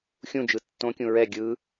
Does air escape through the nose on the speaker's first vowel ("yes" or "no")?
yes